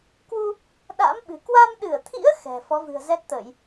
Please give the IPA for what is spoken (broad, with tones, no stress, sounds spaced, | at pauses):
k w u˧ | ɗ a̰ː˧˥ m ɓ ɨ̤˨˩ k w a˧ m ɗ ɨ˧˩ ə̯ t̪ʰ ḭ˧˥ ə̯ x ɛ̤˨˩ f ɔ˨˦ v ɨ̤˨˩ ə̯ z ɛ˦˥ t̚ t̪ əː˧˩˨ j